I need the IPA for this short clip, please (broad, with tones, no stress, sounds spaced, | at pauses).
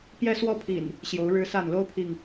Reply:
p j ɛ˦ s w ɔ˦ pʰ ḭ˨˩ n | ɕ j o˨˦ ʊ̯ ɻ ɻ̩˦ s a˥˨ n l o˦ ʊ̯ pʰ i˨ ŋ